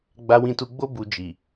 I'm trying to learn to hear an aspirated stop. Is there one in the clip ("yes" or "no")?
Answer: no